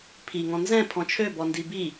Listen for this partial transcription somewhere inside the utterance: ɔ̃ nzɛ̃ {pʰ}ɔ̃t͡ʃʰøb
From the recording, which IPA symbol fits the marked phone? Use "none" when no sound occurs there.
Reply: pʰ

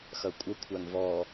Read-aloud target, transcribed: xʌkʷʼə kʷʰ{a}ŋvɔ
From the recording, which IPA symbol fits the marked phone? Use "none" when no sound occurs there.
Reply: a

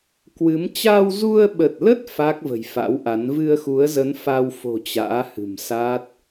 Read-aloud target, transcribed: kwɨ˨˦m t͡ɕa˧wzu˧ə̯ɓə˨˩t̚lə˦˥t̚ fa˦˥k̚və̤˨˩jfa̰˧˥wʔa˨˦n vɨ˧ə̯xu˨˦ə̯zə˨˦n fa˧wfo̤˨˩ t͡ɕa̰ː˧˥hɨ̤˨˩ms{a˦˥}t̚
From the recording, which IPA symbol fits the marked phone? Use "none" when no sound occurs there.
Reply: a˦˥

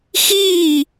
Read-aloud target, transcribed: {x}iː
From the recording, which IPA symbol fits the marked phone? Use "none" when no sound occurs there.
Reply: x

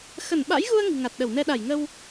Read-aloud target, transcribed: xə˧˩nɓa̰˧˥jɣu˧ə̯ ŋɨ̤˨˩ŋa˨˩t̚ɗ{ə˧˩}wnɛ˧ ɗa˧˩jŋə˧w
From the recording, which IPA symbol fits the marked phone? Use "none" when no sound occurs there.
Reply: ə˧˩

